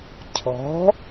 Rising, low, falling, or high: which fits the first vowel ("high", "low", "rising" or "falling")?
rising